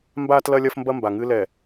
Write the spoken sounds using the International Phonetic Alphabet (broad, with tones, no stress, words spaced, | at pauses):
mbaː˦tlɐ˦lʲɐ˦fmbɐ˦ mba˨ŋɨ˦lɛ˨